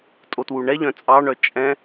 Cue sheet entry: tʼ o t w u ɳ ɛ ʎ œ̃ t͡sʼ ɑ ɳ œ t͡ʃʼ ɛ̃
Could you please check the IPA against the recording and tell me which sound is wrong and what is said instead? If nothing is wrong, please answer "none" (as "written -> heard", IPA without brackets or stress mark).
none